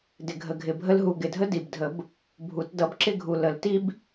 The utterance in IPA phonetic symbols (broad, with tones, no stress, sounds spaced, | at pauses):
d ɪ˨˩ ɡʱ ə˨˩ ɡʱ ɪ˨˩ bʱ ə˥ l ɦ u˨˩ ɡ ɪ˨˩ dʱ ə˥ d i˨˩ b dʱ ə˨˩˦ b | bʱ u˨˩˦ t d ʌ˨˩˦ b ǁ ɪ˥ ɡʱ u˨˩ l ə˨˩˦ l t i˥ b